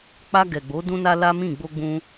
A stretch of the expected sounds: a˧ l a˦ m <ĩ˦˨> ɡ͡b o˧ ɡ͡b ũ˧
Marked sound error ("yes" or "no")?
no